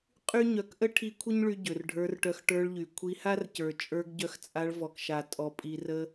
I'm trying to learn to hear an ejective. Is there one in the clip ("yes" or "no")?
yes